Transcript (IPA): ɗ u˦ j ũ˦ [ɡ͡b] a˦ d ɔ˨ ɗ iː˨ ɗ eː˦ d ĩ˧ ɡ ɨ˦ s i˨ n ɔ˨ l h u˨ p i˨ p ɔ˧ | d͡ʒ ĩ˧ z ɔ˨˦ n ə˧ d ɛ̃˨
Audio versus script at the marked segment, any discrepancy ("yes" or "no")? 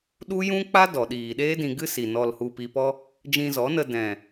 yes